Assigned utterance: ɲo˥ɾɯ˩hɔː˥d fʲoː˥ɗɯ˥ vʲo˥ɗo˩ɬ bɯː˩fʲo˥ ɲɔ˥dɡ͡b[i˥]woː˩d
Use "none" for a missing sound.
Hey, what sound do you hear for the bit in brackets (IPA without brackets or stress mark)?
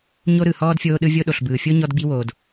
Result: i˥